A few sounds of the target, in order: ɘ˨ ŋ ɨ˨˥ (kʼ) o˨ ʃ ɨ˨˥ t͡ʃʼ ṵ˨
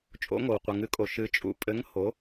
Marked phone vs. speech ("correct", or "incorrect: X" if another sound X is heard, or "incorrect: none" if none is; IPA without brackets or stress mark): correct